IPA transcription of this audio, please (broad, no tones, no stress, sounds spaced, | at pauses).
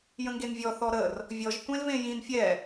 j ə̃ ŋ ɡ e n vʲ ɔ θ ɔ ɾ ə r | vʲ ɔ ʒ tʷ ẽ l v ẽ j ĩ n fʲ ɛ